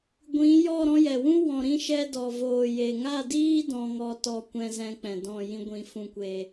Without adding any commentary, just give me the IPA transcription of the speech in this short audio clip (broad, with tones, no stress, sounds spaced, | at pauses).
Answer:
ɡʷ ĩ˨˦ j ɔ˦˨ ɾ ɔ̃˧ j ɛ˨ w ũ˦ w ɔ̃˨ ɾ ĩ˧ ʃ ɛ˧ d ɔ˨ v oː˨ j e˨ ŋ a˦˨ d iː˦ d ɔ̃˧ ŋ ɔ˧ t ɔ˧ kʷ ɛ̃˧ z ɛ̃˧ k͡p ɛ̃˨ d ɔ̃˦˨ j ĩ˧ ɡʷ ĩ˨ f ũ˨ kʷ e˨